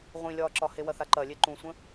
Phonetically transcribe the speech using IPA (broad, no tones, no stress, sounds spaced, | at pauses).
ʁʷ ĩ lʲ ɒː ǁ ɒ h e w ɐ θ a ǃ ɐ lʲ e ǃ ũ sʷ ə̃